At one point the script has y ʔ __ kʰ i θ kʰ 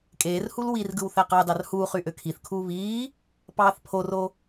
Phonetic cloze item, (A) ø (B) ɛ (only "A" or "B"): A